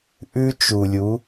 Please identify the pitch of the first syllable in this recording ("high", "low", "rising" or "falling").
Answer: high